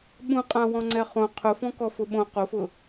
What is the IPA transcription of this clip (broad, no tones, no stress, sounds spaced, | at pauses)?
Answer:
ɓ ũ qʼ ã w ɔ̃ ŋ͡ǀ ɛ χ õ qʰ ʊ f ɔ̃ k ɔ f ʊ ɓ õ q o f ʊ